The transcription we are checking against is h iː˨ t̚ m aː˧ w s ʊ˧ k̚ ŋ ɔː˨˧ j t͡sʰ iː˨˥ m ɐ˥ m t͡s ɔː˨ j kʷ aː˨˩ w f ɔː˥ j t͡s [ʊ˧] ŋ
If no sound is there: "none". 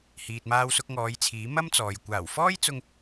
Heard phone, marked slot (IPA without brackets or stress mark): ʊ˧